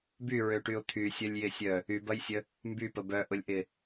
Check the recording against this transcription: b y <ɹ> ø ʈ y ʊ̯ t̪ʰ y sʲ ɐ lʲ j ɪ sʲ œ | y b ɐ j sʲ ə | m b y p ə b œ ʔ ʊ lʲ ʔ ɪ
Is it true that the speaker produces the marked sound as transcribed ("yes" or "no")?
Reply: yes